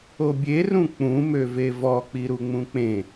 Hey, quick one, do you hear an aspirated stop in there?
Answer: no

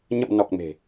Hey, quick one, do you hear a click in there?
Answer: no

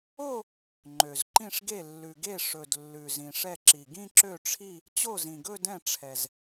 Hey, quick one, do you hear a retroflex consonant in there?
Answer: yes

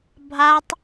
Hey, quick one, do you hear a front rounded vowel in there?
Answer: no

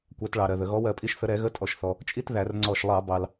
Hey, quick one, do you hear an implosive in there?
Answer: no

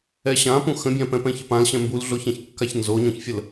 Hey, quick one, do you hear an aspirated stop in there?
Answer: no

